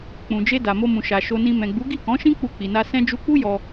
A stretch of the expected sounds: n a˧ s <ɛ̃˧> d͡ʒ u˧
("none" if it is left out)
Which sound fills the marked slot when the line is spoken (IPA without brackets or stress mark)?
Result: ɛ̃˧